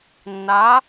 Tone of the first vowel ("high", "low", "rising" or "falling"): rising